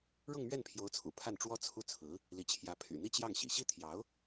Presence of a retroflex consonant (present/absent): present